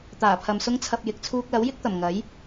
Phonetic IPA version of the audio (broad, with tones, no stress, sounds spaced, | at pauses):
t̪ aː˨˩ pʰ ɐ˨ m s ʊ˥ ŋ t͡sʰ ɐ˧ p̚ j ɪ˨ k̚ t͡sʰ uː˧ k̚ l ɐ˨˥ w j ɪ˥ k̚ t̪ ɐ˨˩ m ŋ ɐ˨˥ j